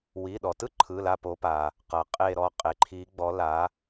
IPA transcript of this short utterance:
w i˩˧˩ ɗ ɔ˩ t ɯ˥ ǃʰ ɯ˩˧˩ l a˧˩ p o˩˧ p a˩ | q ɤ˩ qʼ e˧˩ ɾ ɔ˧˩ qʼ e˩ ǃʰ i˩˧ ɡ͡b ɔ˩˧ l a˩˧

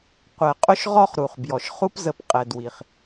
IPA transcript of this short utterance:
qʷ ɛ˨ qʼ ʊ˦ ʃ ʁ ɔ˦ χ ɾ u˨ χ b j ɔ˨ ʃ χ u˦ p z ə˨ p qʼ ɛ˨ d w i˨ χ

